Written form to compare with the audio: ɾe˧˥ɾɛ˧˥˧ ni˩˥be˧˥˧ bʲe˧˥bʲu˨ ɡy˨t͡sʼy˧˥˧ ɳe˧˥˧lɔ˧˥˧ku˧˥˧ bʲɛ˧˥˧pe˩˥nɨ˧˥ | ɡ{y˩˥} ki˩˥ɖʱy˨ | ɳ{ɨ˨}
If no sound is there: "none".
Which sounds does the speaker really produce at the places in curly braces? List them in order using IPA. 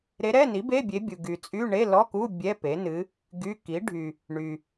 y˧˥˧, y˨

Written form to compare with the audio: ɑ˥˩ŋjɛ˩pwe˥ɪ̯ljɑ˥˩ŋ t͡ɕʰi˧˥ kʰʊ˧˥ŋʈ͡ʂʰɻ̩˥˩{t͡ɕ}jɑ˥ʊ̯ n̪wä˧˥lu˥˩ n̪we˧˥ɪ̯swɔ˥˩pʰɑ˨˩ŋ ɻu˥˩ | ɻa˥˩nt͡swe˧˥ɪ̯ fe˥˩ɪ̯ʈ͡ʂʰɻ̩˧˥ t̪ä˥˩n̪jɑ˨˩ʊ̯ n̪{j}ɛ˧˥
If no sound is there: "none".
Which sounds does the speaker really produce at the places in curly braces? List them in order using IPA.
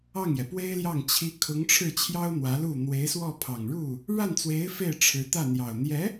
t͡ɕʰ, j

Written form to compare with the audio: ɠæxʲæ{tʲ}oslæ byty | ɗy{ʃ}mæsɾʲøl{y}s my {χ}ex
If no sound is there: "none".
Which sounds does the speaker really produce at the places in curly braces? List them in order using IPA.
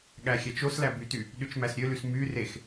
t͡ʃ, t͡ʃ, y, r

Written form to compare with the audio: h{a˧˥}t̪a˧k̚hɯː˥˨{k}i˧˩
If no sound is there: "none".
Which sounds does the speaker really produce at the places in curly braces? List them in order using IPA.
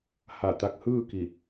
a˧˩, k

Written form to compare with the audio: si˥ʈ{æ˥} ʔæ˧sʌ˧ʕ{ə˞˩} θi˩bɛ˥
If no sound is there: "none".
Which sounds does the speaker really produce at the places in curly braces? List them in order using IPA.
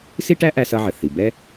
æ˥, ə˩

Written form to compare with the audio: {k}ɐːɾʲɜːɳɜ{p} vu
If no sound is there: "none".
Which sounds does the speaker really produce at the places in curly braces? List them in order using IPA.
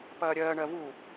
p, none

